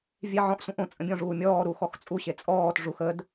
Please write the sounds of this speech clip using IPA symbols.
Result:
vʲ e ʕ ɔ̃ ʔ sʷ ẽ ʔ õ t͡sʼ ə̃ bʲ ɔ̃ ʐ uː mʲ ɔː ɾ u x ɔ x t͡sʼ u ɕ e t͡sʼ ɔː t ʐ u x ə d

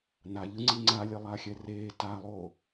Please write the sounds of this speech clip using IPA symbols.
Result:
n a ʎ ɯ ŋ͡ǀ i ŋ͡ǀ a lʲ e lˠ a xʲ ɛ r eː t a lˠ o

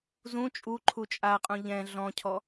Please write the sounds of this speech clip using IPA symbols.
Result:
z ũ t͡ʃʼ u ǃʰ u t͡ʃʼ a qʼ ũ ʎ ɛ̃ ɮ ɔ̃ cʰ ɔ

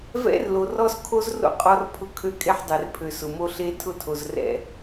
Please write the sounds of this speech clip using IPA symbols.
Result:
v ɛ̰˦ r l o˨ r ɔ˦ s kʰ o˦ z r o̰˦ qʼ ɔ˦ r pʰ ʊ˦ kʰ ø˦ kʼ e˦ ħ dˤ ɛ˨ r pʰ ø˨ s ʊ˨ m o˦ ɬ e˦ tʰ ʊ˦ tʰ o˨ z r ɛ̰˨

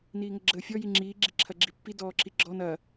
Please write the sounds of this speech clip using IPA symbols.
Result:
n iː ŋ ə ɡ͡ǁ əː fʲ ɔ j i ŋ͡ǁ iː ɡ͡ǁ i ǁʰ ɐ ɡ͡ǁ i pː i d ɔː ǁ i ɡ͡ǁ ɔ n ɐ

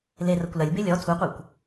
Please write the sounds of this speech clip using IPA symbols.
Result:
l e r ɐ kʷ l ɐ lʲ b e lʲ ɔ tʰ u qʷ æ kʷ

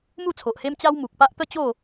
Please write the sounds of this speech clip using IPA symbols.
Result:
m u˥˧ t͡sʰ o˨ ʔ h e˦ m t͡ɕ a˦ w m u˨ k̚ p a˦ ʔ t̪ ə˥˧ t͡ɕ o˥˧

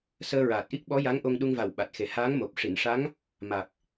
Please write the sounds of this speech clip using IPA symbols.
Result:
s əː˧ ɹ aː˨˩ t̚ ʔ i˦˥ k̚ ɓ ɔ˧˥ j a˧˥ ŋ ʔ o˧ ŋ ɗ u˧ ŋ v a˨˩ w ɓ a˨˩ t̚ x e˨˩ h aː˧˥ ŋ m o˨˩ p̚ ʂ i˨˩˨ n ʂ a˧˥ ŋ | m a˨˩ k̚

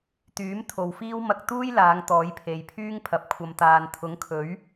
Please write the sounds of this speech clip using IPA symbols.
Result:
t̪ yː˨˥ m t̪ʰ o˨ w f iː˥ w m ɐ˧ k̚ t̪ uː˥ j l aː˨˧ ŋ t̪ ɔː˨˥ j pʰ e˨ j pʰ yː˥ ŋ pʰ ɐ˨ p̚ kʷʰ ɐ˨ m t̪ aː˨ n t̪ʰ ʊ˨˥ ŋ kʰ ɵ˨˥ ɥ

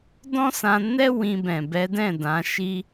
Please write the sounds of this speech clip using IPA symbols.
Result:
d ɔ̃˦ s ã˧ n ɛ˦ w ĩ˧ b ɛ̃˨ b ɛ˨˦ d ɛ̃˦˨ d ã˨˦ ʃ i˦

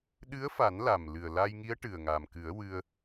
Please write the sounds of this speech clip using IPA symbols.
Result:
ɗ ɨ˧˥ ə̯ f a˨˩˦ n l a˨˩ m l ɨ˨˩ ə̯ l a˧ j ŋ i˧˥ ə̯ ʈ ɨ˨˩ ə̯ ŋ a˨˩ m k ɨ˨˩˦ ə̯ w ɨ˧ ə̯

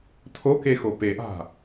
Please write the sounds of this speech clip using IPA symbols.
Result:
tʰ o k e x o p e ʔ a̤

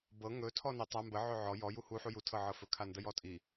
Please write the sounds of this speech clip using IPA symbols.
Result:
b ɤ ŋ ɵ tʰ ɔ n i tˤ a m b ə ʕ ɵ ʕ ɔ j ɔ j u h u ħ u j u tʰ ɤ ʕ ɤ f ɵ kʰ a n d ə j ɔ tʼ i

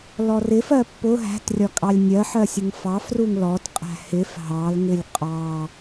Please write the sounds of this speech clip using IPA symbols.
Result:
l ɔ r ɪ f ɜ pː ʊ ɦ æ̤ t rʲ ɒ kʼ ɑ lʲ nʲ ɜ ħ ɜ sʲ ə ŋ f ɑ f r u ŋ l ɔ t qʼ æ̤ h ɪ f ɦ ɑ l ŋ ɪ lʲ qʼ ɑ

